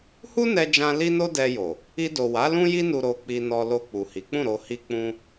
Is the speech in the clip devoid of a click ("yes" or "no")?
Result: yes